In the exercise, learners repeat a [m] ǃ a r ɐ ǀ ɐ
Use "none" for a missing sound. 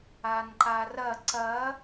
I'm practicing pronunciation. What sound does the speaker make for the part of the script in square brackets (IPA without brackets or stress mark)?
n